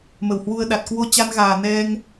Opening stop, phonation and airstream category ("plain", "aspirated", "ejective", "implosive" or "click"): implosive